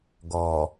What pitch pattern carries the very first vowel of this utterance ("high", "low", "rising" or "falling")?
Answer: low